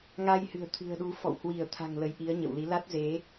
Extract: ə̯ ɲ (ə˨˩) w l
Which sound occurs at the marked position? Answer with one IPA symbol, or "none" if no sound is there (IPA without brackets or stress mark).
ə̰˧˨